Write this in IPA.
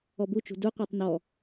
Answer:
ɔ b u t͡ʃ ṳ d u qʷ æ tˤ n ɔ

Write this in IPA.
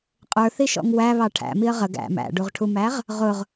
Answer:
qʼ ə˞ θ i ʃ ɔ̰ ŋ w æ β ɑ ʈʰ æ̰ m i ə̯ ʁ ə ɡ æ̰ m æ̰ ɖ u ʁ ʈʰ u m æ ʁ | ʁ ʊ ʁ

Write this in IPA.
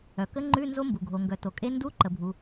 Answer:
œ˩ k ə˦˥ ŋ͡ǃ ʉ˧˥˧ n z o˦˥ m b u˩ ɡʱ o˩ ŋ ɡ œ˩ t o˩ kʼ e˦˥ n d u˧˥˧ ǃ ə˩ bʱ u˩

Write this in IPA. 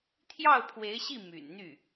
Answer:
t̪ʰ j ɑ˥˩ ʊ̯ pʰ w e˧˥ ɪ̯ ɕ i˥˩ m y̰˨˩ n n̪ y˥˩

